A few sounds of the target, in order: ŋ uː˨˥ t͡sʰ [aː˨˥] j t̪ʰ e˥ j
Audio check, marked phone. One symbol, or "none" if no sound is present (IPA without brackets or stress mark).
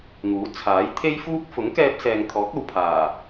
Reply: aː˨˥